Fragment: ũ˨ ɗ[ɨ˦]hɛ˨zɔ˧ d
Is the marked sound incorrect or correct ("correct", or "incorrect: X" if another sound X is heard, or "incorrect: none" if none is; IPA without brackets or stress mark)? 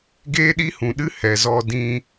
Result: correct